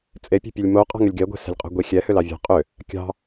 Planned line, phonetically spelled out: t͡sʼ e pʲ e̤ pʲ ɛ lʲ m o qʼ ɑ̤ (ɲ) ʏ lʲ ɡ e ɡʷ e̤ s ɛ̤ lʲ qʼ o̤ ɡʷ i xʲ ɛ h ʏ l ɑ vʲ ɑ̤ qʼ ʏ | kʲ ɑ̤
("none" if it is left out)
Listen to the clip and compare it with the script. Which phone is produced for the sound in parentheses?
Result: ŋ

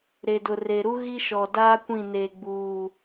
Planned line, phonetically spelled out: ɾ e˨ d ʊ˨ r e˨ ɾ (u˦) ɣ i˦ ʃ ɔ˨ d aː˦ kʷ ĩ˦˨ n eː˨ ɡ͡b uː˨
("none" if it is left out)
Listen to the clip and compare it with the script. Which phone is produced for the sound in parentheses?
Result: u˦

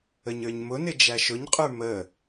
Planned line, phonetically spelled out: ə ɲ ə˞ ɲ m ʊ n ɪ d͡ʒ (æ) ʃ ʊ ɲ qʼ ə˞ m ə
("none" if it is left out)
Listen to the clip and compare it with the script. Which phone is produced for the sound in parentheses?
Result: æ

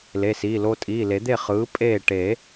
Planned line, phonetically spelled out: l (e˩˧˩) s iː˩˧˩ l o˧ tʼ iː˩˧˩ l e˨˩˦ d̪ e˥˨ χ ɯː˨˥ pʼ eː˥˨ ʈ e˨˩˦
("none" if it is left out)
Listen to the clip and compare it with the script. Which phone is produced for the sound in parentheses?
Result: e˩˧˩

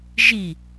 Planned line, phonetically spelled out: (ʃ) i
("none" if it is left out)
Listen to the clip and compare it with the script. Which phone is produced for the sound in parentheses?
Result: ʒ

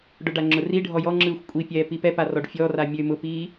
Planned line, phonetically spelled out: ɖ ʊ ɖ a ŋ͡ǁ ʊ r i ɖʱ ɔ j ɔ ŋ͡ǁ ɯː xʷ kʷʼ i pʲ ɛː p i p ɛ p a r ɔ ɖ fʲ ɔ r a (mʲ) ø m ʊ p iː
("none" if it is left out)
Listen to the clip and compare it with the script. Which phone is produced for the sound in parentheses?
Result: mʲ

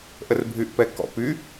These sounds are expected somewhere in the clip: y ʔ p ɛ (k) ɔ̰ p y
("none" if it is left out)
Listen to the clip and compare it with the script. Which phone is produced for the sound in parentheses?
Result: k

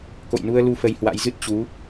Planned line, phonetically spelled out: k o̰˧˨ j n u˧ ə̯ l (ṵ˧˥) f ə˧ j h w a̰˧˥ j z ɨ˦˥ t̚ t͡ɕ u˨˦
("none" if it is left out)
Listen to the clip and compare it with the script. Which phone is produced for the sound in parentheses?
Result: u˨˦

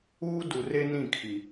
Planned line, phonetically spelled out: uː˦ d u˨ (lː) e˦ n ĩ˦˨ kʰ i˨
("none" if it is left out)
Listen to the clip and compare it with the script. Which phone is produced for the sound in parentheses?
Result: r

